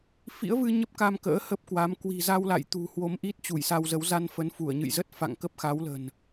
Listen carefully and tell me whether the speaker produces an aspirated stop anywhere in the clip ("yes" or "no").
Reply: no